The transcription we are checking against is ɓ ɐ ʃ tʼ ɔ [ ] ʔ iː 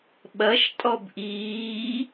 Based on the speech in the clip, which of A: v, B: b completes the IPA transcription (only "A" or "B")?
B